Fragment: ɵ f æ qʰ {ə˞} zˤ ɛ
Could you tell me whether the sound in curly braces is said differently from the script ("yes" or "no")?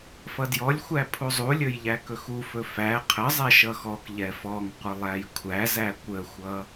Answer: yes